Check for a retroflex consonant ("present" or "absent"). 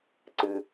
absent